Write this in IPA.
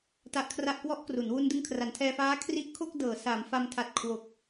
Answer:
t a˦˥ ʔ kʰ r a˥˩ ʔ k w ɔ˦˥ ʔ k r u˩˦ n w u˧ n d ɯ˧ ŋ kʰ r a˩˦ n tʰ ɛː˧ f aː˦˥ kʰ r i˦˥ ʔ kʰ o˥˩ k̚ d ɤː˩˦ s a˩˦ m f a˧ m tʰ a˨˩ t̚ kʰ w o˨˩ k̚

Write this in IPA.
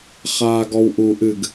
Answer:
χ aː ɡ ɔ w ʔ u ʔ ɨ ɡ

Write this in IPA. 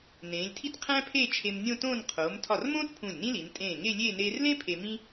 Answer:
n ẽː˩˧ lʲ tʰ i˥˧ t qʰ æ̃˥ pʰ eː˥˧ t͡ʃʰ e˧ m nʲ õ˥˧ t õː˥˧ n qʰ oː˩˧ m tʰ ɒ˧˩ r m õː˥ t pʰ ũ˧˩ lʲ n ĩ˥ l i˩˧ n tʼ ẽː˧˩ ŋ e˥˧ lʲ eː˥˧ n eː˧ r l ẽ˥ pʰ e˧ m ĩ˥

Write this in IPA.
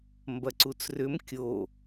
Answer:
m b ɐ ǀ u t͡s r ʏ m kʲ o

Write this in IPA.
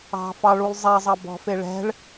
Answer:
ɑ̤ f ɑ ɭ u lˠ zˤ ɛ zˤ ɑ b ɔ̤ f e ɭ ɛ̤ ɭ

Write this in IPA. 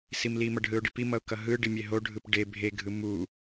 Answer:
s i m l i m ʌ ɖ ɦ ɯ ʊ̯ ɖ i p i m ʌ ʊ̯ k ʌ ɦ ɯ ɖ i mʲ e ɦ o ɖʱ ɯ p ɖ e bʱ e ɡʱ ɯ m u

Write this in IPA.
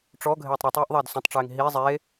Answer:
ʈ͡ʂ ɔ ɡʱ eː tˤ ɾ u tˤ eː ʔ ðˤ ɛː d s ũ tˤ ʈ͡ʂ eː ŋ ɦ i zˤ e

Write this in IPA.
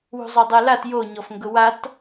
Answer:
w ṳ zˤ o dˤ ɛ l a t j o ɲ ɔ f ŋ ɡ ʊ w a t

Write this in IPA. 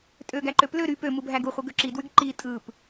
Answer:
tʼ ø ɡ æ ǃ ø p l ø ɾ y p ø m u bʱ æ ɡ u χʷ ɯ ɡ ø ǁ i d w y ɡ ǃ i tʼ ɯ p

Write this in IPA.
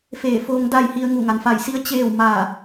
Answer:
f eː˧˩ f oː˧ ŋ d a˥˨ j h i˧ ə̯ ŋ u˧˩ ŋ a˩ n f a˧˩ j s i˧˥ ə̯ t͡ɕ eː˥˨ w m a˧˩

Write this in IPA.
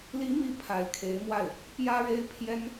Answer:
l i˧˥ m i˧˥ pʰ a˧˥ ɪ̯ kʰ e˧˥ ɪ̯ m w a˥˩ ɪ̯ | p j ä˥ ɻ e˥ ɪ̯ pʰ j ɛ˥ n

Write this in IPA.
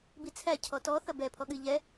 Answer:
b i t͡sʰ æ cʰ ɔ t ɔ θ ɐ b ɛ pʰ ɔ ɠ ɨ ʎ ɛ

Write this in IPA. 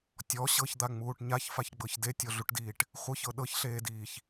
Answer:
tʲ ɔ ɕ ɤ ç d̪ a ŋ͡m uː ʈ ɲ a ç f a ç ɡ͡b ɤ ç d e tʲ o ɮ u ʈ d iː ʈ | χʷ ɤ ç ɤ ɗ ɤ ç ɬ eː d iː ç

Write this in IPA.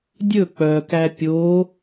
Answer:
dʲ ɵ k͡p œ k æ pʲ o

